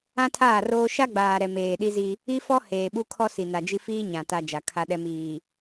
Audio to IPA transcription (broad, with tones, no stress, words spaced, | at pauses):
ã˦tʰaː˦˨roː˦ ʃa˦ɡ͡baː˨ ɾɛ˨ meː˨ɗi˦zi˦ | i˦fɔ˦ heː˨ɓu˦ kʰɔ˦si˨ na˨d͡ʒi˦ fiː˦ɲã˨ ta˦ d͡ʒa˨ kʰa˦ɗɛ˦ miː˨